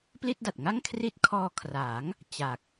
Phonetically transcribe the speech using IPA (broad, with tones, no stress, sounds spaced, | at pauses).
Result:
p l i˥˩ t̚ d a˨˩ t̚ ŋ a˥˩ ŋ kʰ r i˦˥ t̚ kʰ ɔː˧ kʰ r a˩˦ ŋ | t͡ɕ a˨˩ k̚